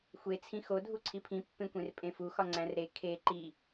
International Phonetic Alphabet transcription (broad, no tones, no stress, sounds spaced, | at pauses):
xʷ e t͡sʰ ĩ x o dʱ u ǀʰ i pʰ ĩ pː ẽ kʷ ẽ r pʼ ẽ f u x ɒ ŋ͡ǀ æ̃ r ɾ e kʰ e ǃ i